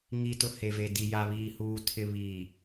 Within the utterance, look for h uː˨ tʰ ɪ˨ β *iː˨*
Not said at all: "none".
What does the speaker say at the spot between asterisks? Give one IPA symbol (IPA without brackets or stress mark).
iː˨